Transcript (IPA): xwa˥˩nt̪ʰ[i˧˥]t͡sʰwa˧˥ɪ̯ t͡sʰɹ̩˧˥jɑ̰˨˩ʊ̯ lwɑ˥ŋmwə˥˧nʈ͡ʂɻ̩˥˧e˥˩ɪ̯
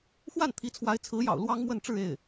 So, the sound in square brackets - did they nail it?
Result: yes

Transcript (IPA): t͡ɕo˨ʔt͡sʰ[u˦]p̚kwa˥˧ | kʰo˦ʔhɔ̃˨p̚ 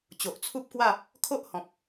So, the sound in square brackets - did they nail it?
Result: yes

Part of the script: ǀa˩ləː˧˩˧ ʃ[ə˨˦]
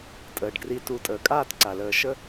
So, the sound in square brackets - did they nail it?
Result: no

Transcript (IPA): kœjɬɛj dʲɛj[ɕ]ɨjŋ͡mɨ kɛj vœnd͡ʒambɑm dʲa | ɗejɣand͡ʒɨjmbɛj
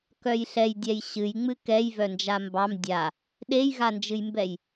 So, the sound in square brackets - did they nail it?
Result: yes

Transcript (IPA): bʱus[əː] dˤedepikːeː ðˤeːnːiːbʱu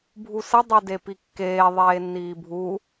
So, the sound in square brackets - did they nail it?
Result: no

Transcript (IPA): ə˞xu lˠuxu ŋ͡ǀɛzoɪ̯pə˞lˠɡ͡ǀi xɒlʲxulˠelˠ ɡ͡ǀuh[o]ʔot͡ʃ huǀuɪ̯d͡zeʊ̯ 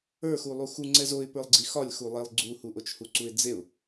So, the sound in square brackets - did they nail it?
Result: no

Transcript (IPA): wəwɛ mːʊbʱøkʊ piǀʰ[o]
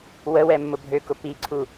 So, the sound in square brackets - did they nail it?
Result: no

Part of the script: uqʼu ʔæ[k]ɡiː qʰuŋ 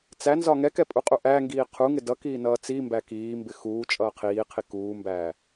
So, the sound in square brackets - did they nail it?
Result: no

